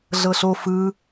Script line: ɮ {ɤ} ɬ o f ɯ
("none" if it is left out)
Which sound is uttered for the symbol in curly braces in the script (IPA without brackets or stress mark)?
ɤ